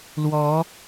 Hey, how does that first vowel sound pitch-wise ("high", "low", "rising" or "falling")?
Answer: rising